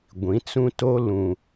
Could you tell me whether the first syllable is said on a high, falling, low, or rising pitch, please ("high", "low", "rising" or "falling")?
rising